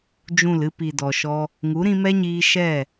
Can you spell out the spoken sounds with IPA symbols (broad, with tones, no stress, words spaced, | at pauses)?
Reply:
d͡ʒũ˦˨lɨ˦ pi˨dɔ˨ʃɔ˧ | ŋu˨˦ɾĩ˧mɛ˦ɲiː˧ ʃɛ˦˨